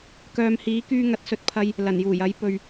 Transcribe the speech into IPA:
k œː˨ m h iː˨˥ k yː˧ ŋ ɐ˨˥ t̚ s ɵ˨ t̚ pʰ ɐ˧ j | l ɐ˨˩ n j uː˨˩ j ɐ˨˥ j p ɵ˨ ɥ

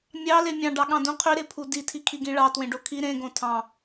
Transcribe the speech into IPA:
mʲ ɑ l e mʲ ɑ̃ ɖ ɑ ɠ ɑ̃ d ũ qʰ y ɾ e pʰ u d i tʰ i kʰ i ɡ ĩ ɭ ɑ t w ẽ ɖ o kʰ i ɾ ẽ ɡ õ tʰ ɑ̃

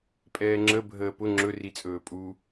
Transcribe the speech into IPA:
pʼ ɛː ŋ͡ǁ ə bʱ əː p ʊ ŋ͡ǁ ɵ r i t͡sʼ ɵː pʼ u

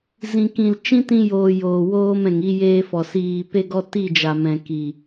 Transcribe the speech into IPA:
z ĩ˨ k ĩ˨ l t͡ʃ ĩ˦ t ĩ˧ j oː˨ j oː˨ w oː˧ m ɛ̃˨ ŋ i˧ j eː˧ f ɔ˨ s iː˨ p e˧ ɡ ɔ˧ t i˦˨ d͡ʒ a˨ m ɛ̃˨ k i˨

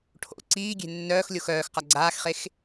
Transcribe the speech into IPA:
ʈʰ o̰ ǀ iː ɡʲ e̤ nː œː x lʲ o x œː x q a ɡ͡ǀ aː x χ e x

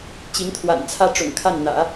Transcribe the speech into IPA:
t͡ɕ i˧˥ ŋ t̪ʰ w a̰˨˩ n t͡sʰ ä˥ ʈ͡ʂ ʊ̰˨˩ ŋ kʰ a˥˩ n n̪ ä̰˨˩˦

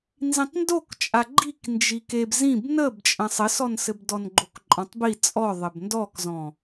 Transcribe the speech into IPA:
n z ĩ tˤ n d o k t͡ʃʼ a ɡ͡ǃ i k n d͡ʒ i k e b z ĩ b n ə b t͡ʃʼ ə̃ sˤ ɘ s ɔ n s ɘ b d ɔ n ɡ͡ǃ o k ǃʼ ɔ̃ tˤ b i t͡sʼ ɔ ðˤ ɘ b n d ɔ k z ɔ̃

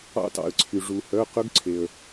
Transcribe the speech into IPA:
ɑ̰˧ t ɑ̰˩ ə̯ ǀʰ y˩ ʐ u˩ h œ˩˧˩ q ɵ˦˥ ɡ ǀʰ e˩ ə̯

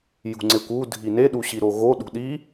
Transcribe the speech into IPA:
j ṳ ŋ͡ǀ e kʷ u dʱ i n e ɗ u ɕ i ɾ o ɣ o ɗ ṳ ɗ i

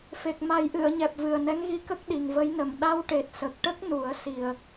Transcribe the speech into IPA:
f e˨˩ k̚ m a˨˩˦ j ʔ ɨ˨˩˨ ə̯ ɲ ɛ˨˩ p̚ v ɨ˨˩ ə̯ n ɛ˧˥ ŋ ɣ i˧ k ə˦˥ k̚ ɗ i˨˩ ŋ v ə˧˥ j n ə˨˩ m ɗ a˧ w ʈ e˨˩ t̚ s ə˨˩ k̚ ʈ ə˦˥ k̚ n u˨˩˦ ə̯ s i˨˩ ə̯

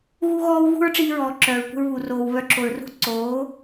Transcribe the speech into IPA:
ɣ u˦ ɣ ɔː˦ w ɣ ṳ˦ ɹ ʈ͡ʂ iː˧ ɹ ɔː˨ ǁ œː˨ ɹ kʷ ə̤˧ ɹ β u˨ r oː˨ w β œ˧ ǁ o˨ ɹ r ṳ˦ ǀ oː˨˦

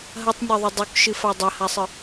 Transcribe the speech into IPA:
ɦ ɐ tˤ nʲ a ðˤ ʉ dˤ u k ʃ ɨ f a dˤ ɐ h a sˤ ɨ

